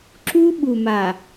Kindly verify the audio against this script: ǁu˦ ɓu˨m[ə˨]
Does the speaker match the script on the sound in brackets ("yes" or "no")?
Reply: no